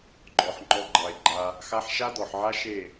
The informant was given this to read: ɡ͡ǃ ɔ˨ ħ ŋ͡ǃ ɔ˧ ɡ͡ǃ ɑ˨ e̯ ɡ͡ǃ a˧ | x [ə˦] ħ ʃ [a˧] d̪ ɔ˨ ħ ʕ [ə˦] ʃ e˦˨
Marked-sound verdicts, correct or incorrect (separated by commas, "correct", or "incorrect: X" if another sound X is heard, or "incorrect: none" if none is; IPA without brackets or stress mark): incorrect: a˦, incorrect: a˦, incorrect: a˦